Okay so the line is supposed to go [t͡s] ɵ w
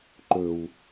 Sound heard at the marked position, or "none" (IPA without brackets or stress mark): ǃ